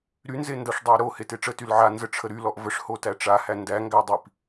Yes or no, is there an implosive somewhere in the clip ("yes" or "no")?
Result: no